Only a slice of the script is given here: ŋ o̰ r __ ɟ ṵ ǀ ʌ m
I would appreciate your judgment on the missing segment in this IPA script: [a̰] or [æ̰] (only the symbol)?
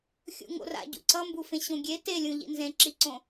a̰